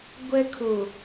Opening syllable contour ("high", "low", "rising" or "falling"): high